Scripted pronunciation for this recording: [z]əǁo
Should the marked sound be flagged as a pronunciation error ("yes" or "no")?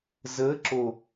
no